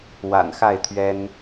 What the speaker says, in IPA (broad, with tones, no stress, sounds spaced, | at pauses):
w a̰˨˩ n x a˥˨ ɪ̯ t̪ʰ ɥ ɛ˦ n